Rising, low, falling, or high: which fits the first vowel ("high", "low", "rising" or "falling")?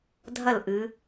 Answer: falling